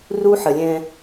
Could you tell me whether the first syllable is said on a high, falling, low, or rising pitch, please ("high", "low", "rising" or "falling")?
high